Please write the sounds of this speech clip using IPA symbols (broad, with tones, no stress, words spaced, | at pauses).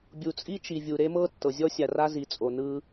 bʲu˨t͡sʼi˦t͡ʃi˨vʲu˨ ɾe˦mɤ˦ tːɤ˨zʲɔ˦sʲa˨ra˦ zi˨t͡sʼo˨nɯ˦